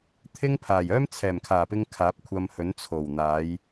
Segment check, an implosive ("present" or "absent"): absent